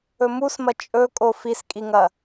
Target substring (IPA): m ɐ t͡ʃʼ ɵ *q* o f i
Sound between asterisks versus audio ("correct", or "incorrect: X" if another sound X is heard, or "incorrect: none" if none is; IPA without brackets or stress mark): incorrect: kʼ